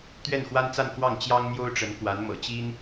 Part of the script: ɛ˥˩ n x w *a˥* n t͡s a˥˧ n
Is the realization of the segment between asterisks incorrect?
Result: no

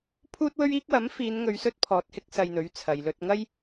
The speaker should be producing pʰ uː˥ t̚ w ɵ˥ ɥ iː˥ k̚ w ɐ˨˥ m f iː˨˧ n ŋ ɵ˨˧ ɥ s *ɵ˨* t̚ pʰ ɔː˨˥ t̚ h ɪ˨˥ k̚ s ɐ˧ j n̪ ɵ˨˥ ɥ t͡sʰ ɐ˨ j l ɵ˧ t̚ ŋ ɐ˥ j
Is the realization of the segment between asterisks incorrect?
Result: yes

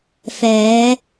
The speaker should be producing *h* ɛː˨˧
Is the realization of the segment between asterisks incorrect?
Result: yes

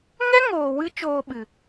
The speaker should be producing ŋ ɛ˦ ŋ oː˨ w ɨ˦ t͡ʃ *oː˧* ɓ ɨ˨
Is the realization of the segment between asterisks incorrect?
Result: no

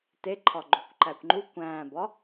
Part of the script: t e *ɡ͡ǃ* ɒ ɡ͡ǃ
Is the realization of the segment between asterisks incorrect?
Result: yes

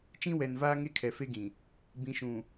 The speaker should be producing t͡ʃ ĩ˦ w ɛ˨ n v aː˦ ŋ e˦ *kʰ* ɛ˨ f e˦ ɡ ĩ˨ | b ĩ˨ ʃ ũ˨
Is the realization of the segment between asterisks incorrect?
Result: no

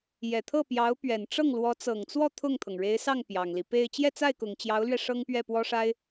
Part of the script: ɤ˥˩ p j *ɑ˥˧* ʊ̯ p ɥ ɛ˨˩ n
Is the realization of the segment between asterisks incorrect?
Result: yes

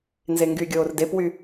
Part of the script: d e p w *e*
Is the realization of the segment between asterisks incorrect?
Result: yes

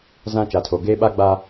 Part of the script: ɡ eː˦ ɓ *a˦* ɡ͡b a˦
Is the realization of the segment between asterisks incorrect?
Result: no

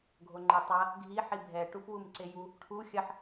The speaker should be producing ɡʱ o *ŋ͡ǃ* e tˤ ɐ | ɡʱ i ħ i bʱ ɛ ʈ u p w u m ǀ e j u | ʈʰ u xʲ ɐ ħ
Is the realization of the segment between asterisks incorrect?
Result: no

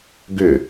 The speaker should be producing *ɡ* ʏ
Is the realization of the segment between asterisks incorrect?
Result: no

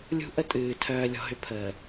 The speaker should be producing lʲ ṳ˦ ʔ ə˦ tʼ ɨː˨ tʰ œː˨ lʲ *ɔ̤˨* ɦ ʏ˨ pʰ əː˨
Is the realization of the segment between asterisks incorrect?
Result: no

